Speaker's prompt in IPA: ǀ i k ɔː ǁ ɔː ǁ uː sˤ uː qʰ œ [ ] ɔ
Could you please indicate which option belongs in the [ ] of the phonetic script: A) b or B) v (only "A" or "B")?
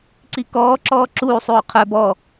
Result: A